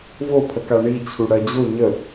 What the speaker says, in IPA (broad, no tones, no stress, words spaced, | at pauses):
vopʰəka ɳit͡ɕʰu ɽɜd͡ʑo ɲə